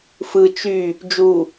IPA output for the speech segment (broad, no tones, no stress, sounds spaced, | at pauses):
f ɯ t͡ʃ y | d͡ʒ u